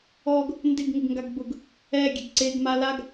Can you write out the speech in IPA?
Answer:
ɔ ɡ | n d ɪ ɡ ŋ ɪ ɡ ŋ ɡ a ɡ b ʊ ɡ | ɛ ɡʲ ɛ ɡ ǀ e ɡ m a l a ɡ

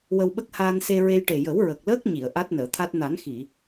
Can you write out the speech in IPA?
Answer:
w ə˧ w ɓ ə˦˥ k̚ h aː˧ n s e˧ ɹ e˧ j ʈ e˨˩ j ə˨˩˦ w ɹ ə˨˩ k̚ l əː˦˥ k̚ ɲ i˨˩˨ ə̯ ʔ a˦˥ t̚ n əː˨˩˨ t̪ʰ a˦˥ t̚ n a˨˩˦ n x i˨˩˨

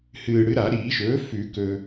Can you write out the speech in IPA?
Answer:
h ɨː˨˩ ɽ ɨ˩˥ ɾ a˨˩˦ ɾ iː˨˩˦ ʃ ɵː˩˥ f ʉ˨˩˦ k ɵ˨˩

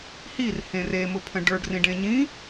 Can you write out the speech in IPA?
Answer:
h i r h ẽ r e m ʊ pʰ ə̃ ɖ ə˞ ɖ r ĩ ɖ ẽ ɲ ĩ

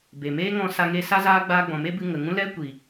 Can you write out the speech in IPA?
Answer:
b e˨ m eː˦ ŋ ɔ̃˧ s a˧ ŋ e˧ s a˦ z aː˦ ɡ͡b aː˧ ɡ͡b ɔ̃˨ m e˦ b ɨ˧ ŋ ə˨ ŋ ũ˦ l ɛ˦ kʷ i˨

